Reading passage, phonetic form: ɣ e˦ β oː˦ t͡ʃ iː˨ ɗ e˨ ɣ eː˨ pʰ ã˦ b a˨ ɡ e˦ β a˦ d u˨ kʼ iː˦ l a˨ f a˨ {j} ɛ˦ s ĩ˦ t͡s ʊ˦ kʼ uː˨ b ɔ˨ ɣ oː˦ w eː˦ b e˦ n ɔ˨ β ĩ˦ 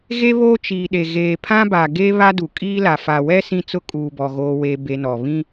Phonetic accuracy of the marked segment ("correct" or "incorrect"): incorrect